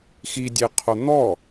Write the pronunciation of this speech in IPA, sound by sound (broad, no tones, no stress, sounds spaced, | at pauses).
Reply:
x i dʲ e qʰ o n̪ ɔ